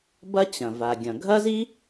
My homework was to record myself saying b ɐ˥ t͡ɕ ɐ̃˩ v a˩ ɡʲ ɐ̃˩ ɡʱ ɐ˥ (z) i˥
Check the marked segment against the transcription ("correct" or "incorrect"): correct